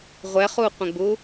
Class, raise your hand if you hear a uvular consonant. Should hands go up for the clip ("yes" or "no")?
yes